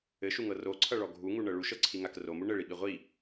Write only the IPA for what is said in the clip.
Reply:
ɘ ʃ u ŋ ɤ r o ǀʰ ʌ ɭ ɔ ɡʱ u ŋ u ɳ ɤ ɭ u ʃ ɤ ǀʰ i ŋ a k r o m u ɳ ɘ ɭ i ɓ i ʁʷ i

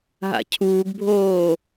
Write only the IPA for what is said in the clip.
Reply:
ɦ a̰ cʰ uː ɡ bʱ oː

